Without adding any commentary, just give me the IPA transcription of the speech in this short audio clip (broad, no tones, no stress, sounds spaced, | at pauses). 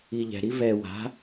i ʎ ɛ̤ ɾ i v ɛ w a̤